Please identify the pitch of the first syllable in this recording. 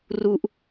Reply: high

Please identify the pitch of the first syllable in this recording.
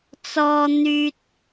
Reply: low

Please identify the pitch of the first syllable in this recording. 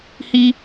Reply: high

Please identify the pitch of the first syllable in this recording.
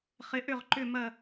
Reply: rising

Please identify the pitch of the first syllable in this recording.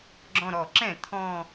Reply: low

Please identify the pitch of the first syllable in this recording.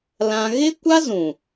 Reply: high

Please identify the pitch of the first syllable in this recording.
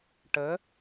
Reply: rising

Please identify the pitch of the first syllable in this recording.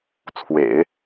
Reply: low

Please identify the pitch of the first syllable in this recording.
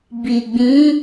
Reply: low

